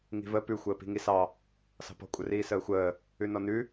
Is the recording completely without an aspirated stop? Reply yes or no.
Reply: yes